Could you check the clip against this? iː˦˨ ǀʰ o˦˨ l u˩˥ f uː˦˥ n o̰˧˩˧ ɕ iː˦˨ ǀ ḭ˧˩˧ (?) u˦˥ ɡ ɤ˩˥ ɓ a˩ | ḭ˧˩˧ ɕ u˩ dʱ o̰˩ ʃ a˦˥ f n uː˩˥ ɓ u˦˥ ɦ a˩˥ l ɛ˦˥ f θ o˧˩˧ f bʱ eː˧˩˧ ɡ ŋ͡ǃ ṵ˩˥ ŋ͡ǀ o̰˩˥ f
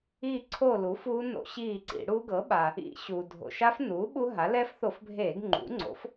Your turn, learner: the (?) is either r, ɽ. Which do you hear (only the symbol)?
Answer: ɽ